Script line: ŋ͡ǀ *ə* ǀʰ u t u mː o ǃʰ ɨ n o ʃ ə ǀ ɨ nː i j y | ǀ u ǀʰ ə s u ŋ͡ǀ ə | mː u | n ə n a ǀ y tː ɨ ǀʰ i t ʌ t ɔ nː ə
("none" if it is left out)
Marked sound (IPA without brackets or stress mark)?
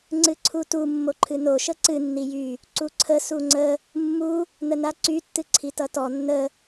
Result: ɨ